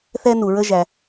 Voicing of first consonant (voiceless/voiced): voiceless